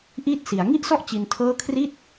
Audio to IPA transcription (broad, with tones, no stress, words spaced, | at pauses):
ʔiː˥˩t̚si˩˦a̯ ŋi˥˩ʔsɔ˥˩ʔ t͡ɕi˧ntʰɤː˥˩ kʰri˥˩t̚